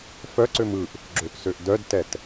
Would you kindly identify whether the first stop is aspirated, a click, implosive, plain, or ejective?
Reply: click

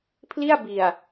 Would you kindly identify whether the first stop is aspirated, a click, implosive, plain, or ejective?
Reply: aspirated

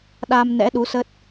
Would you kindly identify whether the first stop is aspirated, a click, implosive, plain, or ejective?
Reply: implosive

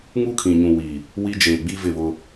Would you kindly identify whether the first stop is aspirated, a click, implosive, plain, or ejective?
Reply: aspirated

